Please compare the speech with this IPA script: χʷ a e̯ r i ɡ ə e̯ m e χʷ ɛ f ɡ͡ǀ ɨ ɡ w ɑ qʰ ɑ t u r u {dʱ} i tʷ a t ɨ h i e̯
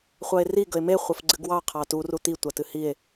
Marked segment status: incorrect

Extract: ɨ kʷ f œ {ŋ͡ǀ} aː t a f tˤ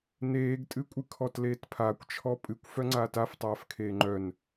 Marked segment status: correct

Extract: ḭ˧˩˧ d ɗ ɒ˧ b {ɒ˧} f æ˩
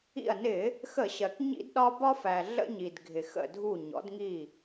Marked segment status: correct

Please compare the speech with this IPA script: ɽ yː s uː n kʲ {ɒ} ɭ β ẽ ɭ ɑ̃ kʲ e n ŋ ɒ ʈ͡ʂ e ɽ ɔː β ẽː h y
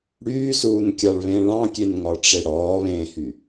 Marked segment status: incorrect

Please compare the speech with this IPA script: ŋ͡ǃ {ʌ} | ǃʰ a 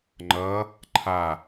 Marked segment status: correct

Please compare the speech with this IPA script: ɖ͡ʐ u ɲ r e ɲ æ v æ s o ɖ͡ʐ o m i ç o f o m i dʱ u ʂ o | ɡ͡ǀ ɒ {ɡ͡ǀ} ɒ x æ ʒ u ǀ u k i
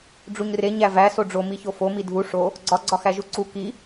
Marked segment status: correct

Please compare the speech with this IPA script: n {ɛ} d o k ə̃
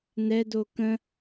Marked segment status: correct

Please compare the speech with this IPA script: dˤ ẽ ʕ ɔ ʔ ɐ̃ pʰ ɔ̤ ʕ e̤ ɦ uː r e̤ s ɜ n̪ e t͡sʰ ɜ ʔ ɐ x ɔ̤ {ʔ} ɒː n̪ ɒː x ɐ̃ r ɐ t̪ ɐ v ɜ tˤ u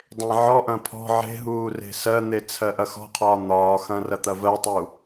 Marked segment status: incorrect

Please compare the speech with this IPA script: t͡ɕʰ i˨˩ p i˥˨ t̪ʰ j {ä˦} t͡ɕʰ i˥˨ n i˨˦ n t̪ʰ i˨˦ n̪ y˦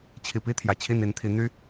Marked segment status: incorrect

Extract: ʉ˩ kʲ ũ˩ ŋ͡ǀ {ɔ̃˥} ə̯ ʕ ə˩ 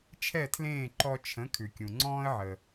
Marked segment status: incorrect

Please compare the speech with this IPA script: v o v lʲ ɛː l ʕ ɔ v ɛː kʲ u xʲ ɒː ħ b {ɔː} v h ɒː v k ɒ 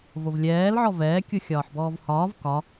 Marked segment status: correct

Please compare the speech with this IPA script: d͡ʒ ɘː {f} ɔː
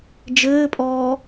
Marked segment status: incorrect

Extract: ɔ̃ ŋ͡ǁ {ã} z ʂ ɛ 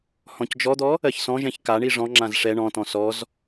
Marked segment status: correct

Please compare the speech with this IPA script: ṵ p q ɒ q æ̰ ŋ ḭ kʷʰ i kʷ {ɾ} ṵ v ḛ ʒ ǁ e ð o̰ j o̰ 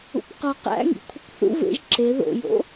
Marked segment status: incorrect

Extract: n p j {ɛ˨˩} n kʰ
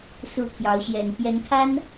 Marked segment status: incorrect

